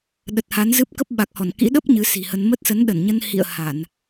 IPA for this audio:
ɗ ə˨˩ t̚ h a˨˦ n z ɨ˦˥ p̚ k ə˦˥ p̚ ɓ a˨˩ k̚ h ɔ˧˩ n k ḭ˧˥ ɗ ə˦˥ p̚ ɲ ɨ˨˦ s i̤˨˩ h ə˧ n m ə˦˥ t̚ s ə˨˦ n ɗ ə˧˩ n ɲ ə˧ n h ḭ˧˨ ə̯ h a˧˩˨ n

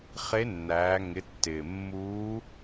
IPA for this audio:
χ e˧˥ nː æː˩˧ ŋ ɪ˩˧ tː ɪː˩ mː uː˧˥

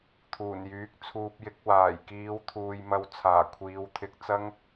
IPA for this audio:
t̪ʰ uː˨˩ n j yː˨˥ k̚ t͡sʰ uː˧ p̚ j ɪ˨˥ k̚ w aː˨˩ j k iː˨˧ w t̪ʰ uː˨ j m ɐ˧ w t͡sʰ aː˨˩ kʷʰ iː˨˧ w t̪ʰ ɪ˧ k̚ t͡s ɐ˥ ŋ

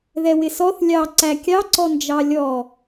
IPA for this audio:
ð ɛ w ɪ s ɔ θ lʲ ɑ ǀ æ kʲ ɑ ǀ ɔ n d͡ʒ ɑ lʲ ɔ

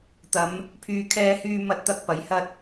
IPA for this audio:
t̪ ɐ˨˧ m | pʰ yː˧ kʰ ɛː˥ h yː˥ m ɐ˧ t̚ t̪ ɐ˧ k̚ p ɐ˨˥ j h ɐ˥ t̚

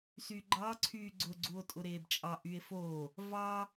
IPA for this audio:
s y ɡ͡ǃ ɑ ǀʰ yː ɡ͡ǀ ʊ ɡ͡ǀ u o̯ tʼ ʊ ɾ eː b t͡ʃʼ ɑ ʔ y e̯ f o | v ɑ

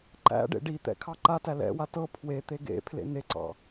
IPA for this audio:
ǃ æ̰ ɖ ḛ ɖ i t̪ ɛ̰ kʰ ɑ ǃ a t æ l ɛ̰ w a t ɤ pʰ w e t̪ e ɡ ḛ pʰ l ḛ n e ǀ ɑ̰

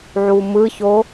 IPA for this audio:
ʕ u m ɯ ç o

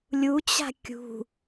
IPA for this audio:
lʲ u t͡ɕ a̤ kʲ ṳ

